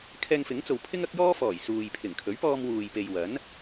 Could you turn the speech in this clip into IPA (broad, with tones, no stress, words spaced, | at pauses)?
kʰɛː˧ŋfɪ˨˥ŋt͡so˨wpʰɪ˥ŋ ɐ˥k̚jɔː˥fɔː˨˩j suː˨j pʰɪ˨˩ŋkʰɵ˨˥ɥpɔː˧m wuː˨jpe˨j wɐ˨˥n